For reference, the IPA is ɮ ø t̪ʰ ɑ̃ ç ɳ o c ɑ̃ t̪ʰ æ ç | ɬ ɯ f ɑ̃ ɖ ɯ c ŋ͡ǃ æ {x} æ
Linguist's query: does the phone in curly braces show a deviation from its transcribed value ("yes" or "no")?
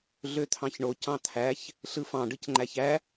yes